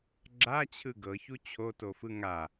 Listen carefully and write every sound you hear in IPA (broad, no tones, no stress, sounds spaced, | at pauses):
ɡ͡ǁ a t͡ɕʰ ɯ ɡ ɤ ç u t͡ɕʰ o t o f ɯ ŋ a